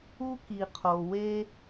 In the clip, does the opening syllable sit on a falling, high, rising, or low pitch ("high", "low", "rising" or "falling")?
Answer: high